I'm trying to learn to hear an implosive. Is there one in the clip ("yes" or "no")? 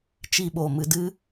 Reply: yes